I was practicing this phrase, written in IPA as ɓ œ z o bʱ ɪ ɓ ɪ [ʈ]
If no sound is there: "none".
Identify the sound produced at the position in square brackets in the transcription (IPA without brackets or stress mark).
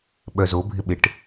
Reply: ʈ